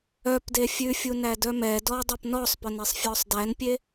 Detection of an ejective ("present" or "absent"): absent